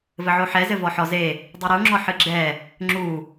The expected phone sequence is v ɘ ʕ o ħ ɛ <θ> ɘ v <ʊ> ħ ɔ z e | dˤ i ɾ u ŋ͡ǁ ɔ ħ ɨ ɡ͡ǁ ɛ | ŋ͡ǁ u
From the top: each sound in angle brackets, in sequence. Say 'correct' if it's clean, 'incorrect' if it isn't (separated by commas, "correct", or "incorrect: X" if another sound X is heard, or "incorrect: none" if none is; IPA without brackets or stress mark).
incorrect: z, incorrect: ɔ